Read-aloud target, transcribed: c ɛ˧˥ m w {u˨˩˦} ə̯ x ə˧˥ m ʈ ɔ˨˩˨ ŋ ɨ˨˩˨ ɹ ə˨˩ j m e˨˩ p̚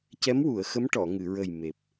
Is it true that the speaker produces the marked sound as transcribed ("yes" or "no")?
no